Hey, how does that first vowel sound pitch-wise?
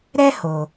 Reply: high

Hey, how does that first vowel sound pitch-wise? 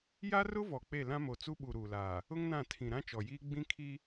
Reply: high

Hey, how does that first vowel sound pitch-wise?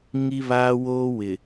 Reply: high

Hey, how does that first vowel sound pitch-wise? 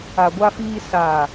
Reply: low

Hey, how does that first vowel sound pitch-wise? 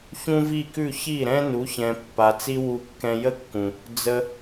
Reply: high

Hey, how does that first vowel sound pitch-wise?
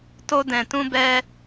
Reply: high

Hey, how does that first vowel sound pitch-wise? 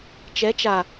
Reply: rising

